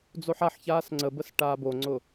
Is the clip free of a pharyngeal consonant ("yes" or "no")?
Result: no